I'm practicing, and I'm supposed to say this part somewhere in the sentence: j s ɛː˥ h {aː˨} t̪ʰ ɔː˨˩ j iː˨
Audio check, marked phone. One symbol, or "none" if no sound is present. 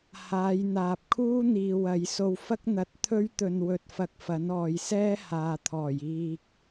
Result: aː˨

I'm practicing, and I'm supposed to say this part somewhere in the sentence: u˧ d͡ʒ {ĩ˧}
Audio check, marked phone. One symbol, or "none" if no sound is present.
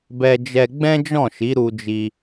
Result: i˧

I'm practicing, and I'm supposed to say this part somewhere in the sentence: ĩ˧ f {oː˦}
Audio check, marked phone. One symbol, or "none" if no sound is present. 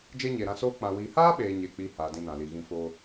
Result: oː˧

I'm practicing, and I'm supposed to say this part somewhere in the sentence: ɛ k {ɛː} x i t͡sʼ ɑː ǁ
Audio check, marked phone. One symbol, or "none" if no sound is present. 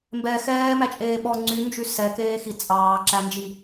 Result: eː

